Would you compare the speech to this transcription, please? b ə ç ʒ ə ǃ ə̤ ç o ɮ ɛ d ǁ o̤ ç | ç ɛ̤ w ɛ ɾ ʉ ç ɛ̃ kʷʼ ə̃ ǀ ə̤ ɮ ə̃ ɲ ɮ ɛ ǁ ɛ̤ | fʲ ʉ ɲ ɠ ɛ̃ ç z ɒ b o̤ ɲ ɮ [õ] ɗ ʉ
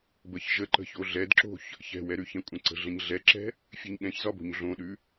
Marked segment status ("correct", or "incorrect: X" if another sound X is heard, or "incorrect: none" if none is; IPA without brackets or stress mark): correct